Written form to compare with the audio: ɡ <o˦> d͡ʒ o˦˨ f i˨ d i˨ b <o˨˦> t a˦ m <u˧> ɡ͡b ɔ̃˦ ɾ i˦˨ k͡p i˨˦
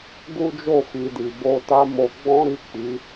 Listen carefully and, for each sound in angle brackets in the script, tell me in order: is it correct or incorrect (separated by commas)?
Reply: incorrect, incorrect, incorrect